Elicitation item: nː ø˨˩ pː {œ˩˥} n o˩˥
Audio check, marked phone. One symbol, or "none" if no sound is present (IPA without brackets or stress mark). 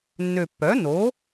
œ˩˥